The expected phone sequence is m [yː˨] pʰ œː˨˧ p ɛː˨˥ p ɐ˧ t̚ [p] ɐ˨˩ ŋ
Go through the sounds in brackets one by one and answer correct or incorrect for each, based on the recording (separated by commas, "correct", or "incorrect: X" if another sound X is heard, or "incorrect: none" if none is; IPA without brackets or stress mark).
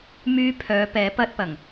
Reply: incorrect: yː˧, correct